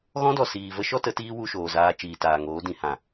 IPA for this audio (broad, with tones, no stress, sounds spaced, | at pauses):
ɣ ɔ̃˦ d ɔ˨ s iː˨ v ə˦ ʃ ɔ˦ t ə˨˦ t iː˦ w u˧ ʃ oː˨ z aː˧ t͡ʃ iː˨ t aː˨ ŋ oː˨˦ d ĩ˨ h ã˨